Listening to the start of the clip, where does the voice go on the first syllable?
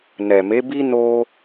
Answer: low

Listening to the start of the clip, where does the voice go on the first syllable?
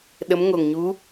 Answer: rising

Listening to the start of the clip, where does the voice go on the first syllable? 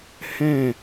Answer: falling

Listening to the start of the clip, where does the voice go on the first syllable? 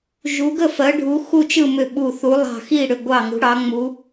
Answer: rising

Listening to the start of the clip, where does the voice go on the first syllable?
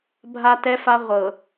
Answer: high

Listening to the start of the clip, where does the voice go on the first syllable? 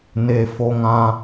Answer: low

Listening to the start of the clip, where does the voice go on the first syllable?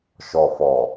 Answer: low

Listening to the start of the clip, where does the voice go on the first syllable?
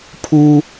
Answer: high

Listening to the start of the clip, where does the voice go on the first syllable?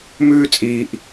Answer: high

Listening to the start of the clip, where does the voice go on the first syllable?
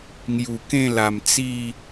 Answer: low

